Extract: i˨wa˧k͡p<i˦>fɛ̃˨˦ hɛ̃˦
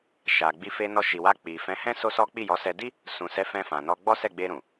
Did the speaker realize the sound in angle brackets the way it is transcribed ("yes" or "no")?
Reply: no